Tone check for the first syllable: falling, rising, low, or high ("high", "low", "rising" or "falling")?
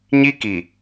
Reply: high